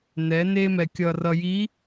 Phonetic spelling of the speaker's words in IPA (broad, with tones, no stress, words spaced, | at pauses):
nɛ˨˦ne˦mɛ˨ kʲʌ˨rʌ˨ji˨˦